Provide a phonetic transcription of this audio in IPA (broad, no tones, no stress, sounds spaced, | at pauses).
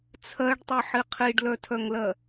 t͡sʰ ɜ ɖ tˤ ɨ ħ i qʰ i ɖ l œ tʰ œ ŋ l ɜ